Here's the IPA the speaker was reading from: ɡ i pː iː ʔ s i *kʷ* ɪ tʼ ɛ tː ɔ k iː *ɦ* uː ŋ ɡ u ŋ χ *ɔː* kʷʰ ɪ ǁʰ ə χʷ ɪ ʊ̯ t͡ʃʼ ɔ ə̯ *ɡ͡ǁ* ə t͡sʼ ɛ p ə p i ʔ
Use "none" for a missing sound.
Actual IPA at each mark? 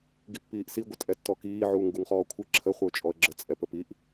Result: ɡʷ, ʕ, ɔː, ɡ͡ǁ

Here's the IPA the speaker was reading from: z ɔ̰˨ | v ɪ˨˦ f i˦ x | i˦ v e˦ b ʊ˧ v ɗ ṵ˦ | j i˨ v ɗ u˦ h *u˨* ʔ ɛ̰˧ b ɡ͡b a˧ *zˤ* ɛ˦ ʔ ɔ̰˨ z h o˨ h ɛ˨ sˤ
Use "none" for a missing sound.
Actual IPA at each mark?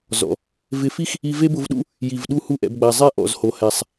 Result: u˦, zˤ

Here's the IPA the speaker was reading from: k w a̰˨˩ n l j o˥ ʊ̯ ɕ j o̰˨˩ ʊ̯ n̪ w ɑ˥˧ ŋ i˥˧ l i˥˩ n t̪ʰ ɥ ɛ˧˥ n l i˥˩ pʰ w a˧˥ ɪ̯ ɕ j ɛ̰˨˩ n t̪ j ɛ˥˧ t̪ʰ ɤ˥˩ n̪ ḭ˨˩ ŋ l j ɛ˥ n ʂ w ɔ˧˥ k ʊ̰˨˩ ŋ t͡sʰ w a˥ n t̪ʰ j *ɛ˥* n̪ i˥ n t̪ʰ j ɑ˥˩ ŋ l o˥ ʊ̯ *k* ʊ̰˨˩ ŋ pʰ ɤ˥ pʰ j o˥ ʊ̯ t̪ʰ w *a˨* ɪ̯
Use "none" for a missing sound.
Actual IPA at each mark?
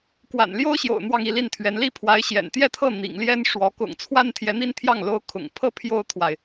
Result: ɛ˧˥, kʰ, a˨

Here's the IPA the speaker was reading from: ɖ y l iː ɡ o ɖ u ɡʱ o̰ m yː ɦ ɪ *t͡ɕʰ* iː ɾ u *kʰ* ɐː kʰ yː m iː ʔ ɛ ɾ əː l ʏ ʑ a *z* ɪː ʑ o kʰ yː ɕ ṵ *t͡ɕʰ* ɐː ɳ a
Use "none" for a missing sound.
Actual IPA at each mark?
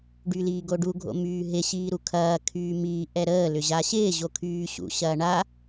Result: ɕ, kʰ, ɕ, ɕ

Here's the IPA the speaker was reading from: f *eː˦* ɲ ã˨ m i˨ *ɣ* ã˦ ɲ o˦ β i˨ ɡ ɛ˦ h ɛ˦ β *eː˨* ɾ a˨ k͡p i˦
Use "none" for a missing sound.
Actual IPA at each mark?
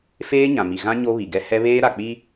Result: eː˦, ɣ, eː˦

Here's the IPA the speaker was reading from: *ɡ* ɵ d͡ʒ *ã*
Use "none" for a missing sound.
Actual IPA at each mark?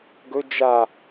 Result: ɡ, a

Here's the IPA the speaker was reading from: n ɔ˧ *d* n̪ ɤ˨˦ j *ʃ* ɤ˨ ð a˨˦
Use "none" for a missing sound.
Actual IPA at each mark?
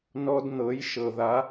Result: d, ʃ

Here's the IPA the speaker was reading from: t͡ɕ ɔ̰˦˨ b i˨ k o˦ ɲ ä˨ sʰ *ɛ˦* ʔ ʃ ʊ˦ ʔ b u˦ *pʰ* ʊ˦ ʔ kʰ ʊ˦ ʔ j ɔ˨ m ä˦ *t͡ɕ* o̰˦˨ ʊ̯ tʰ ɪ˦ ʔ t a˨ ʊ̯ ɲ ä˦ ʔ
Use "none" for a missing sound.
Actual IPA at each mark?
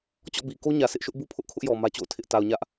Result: ɪ˦, pʰ, t͡ɕ

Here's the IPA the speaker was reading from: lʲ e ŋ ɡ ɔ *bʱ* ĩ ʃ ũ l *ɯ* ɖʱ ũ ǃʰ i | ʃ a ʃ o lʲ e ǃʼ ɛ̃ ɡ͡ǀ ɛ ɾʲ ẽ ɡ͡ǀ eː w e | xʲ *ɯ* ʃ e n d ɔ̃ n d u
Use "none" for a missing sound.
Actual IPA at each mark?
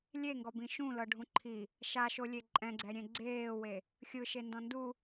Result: b, ɤ, ɯ

